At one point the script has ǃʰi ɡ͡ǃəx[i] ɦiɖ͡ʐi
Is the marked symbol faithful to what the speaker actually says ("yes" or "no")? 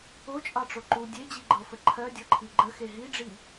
no